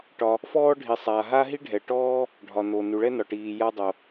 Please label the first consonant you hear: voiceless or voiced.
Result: voiceless